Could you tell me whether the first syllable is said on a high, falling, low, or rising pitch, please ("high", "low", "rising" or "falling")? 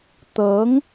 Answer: rising